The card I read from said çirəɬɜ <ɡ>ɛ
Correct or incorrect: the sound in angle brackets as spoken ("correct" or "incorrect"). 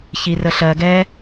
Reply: correct